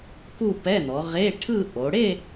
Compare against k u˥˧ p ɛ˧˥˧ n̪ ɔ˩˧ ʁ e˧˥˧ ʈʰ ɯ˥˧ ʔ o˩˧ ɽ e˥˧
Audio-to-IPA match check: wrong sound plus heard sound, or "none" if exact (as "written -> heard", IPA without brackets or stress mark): none